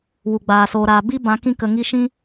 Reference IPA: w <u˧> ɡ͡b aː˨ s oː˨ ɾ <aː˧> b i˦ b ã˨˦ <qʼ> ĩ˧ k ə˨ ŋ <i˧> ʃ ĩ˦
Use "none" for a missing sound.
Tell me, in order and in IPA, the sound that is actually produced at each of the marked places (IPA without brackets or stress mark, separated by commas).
u˨, aː˨, k, i˧